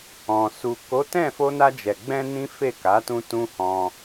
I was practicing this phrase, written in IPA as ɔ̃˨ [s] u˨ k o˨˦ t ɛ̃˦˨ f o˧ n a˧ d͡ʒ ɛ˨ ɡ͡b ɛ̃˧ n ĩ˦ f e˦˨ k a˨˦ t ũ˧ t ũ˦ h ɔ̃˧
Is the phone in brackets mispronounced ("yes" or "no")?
no